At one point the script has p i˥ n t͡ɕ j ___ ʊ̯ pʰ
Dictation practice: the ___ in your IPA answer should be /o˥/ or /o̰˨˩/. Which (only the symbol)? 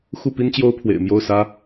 o˥